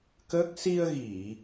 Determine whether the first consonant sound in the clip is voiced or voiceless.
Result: voiceless